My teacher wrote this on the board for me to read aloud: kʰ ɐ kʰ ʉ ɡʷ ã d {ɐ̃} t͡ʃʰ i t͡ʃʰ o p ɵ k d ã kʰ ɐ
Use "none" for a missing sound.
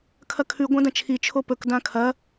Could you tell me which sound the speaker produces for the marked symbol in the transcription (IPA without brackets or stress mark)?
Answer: ɐ̃